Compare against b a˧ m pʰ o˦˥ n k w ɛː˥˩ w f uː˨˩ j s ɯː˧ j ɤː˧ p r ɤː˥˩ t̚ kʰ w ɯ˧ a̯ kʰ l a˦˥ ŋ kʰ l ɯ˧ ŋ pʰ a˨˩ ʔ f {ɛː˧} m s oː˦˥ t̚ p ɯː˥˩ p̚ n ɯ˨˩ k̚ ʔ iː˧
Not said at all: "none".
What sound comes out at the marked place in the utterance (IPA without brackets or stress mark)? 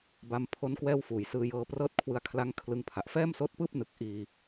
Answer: ɛː˥˩